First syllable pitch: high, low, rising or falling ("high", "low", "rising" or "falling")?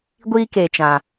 high